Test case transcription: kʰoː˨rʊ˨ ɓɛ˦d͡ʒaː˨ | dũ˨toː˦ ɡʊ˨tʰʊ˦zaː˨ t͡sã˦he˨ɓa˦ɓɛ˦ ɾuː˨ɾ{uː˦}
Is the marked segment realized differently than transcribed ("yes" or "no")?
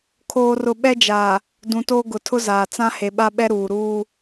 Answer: no